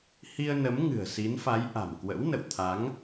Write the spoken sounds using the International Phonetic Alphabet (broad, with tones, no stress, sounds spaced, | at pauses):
h i˧ ə̯ n ə˨˦ m ŋ ɨ̤˨˩ ə̯ s i˨˦ n f a˨˦ j ʔ a̤˨˩ m k w ə̰˧˥ w n ə̰˧˨ w t̪ʰ a˨˦ ŋ